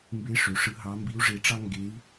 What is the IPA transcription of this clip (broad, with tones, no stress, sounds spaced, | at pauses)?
m b e˧˥ ʂ ø˩˧ ʂ ɯ˧˥ ɦ ɑ˧˥ m b i˧˥ u̯ ʐ e˧ ʈ͡ʂ ɑ˥ ŋ ɡ e˧˥ i̯